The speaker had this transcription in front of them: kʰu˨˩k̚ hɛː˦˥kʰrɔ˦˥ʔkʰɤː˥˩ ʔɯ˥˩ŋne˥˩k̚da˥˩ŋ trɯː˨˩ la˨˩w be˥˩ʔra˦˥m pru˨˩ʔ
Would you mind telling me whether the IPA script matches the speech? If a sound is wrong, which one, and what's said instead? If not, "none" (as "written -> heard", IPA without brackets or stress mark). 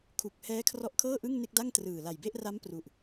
w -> j